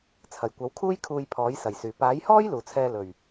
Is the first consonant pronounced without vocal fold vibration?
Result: yes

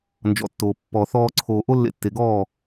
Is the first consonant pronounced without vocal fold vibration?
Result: no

